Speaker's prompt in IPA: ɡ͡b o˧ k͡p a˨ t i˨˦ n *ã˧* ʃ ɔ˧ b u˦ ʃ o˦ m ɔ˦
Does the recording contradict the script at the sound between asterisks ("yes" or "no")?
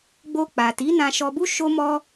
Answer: no